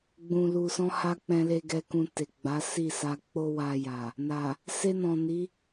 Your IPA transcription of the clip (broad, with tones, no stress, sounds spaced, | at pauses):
ɡ͡b ũ˨ l u˨ s ɔ̃˧ h a˧ k͡p ɛ̃˧ l e˧ ɡ ɛ˧ k ũ˧ t e˨ ɡ͡b a˨˦ s i˦˨ s a˧ k͡p o˦ w a˧ j a˨ | n a˨ | s e˧ n ɔ̃˨ n i˨˦